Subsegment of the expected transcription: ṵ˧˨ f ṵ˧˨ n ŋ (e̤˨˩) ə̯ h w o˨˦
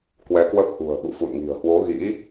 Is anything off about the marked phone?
yes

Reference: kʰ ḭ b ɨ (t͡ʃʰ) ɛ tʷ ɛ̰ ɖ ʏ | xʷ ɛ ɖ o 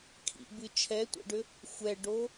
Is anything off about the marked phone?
no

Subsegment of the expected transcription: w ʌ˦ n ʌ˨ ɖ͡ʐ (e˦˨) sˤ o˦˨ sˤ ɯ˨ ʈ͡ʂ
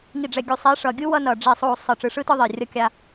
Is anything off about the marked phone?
no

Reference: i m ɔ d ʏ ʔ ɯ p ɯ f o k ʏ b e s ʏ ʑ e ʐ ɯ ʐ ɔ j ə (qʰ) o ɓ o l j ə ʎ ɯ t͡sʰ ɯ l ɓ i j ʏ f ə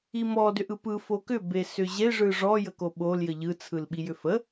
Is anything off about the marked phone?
yes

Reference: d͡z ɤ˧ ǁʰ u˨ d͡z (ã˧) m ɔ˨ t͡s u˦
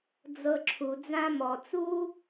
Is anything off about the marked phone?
no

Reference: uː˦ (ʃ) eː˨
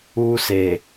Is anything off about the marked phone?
yes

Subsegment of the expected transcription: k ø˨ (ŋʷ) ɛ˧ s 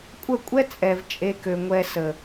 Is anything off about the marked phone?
no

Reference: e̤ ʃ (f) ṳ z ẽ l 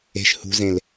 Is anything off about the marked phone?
yes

